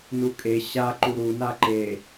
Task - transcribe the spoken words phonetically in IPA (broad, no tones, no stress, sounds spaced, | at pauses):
n u kʼ e ɕ a ǃ u ɾ u n a ǃ e